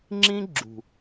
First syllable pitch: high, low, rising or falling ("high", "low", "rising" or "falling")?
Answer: high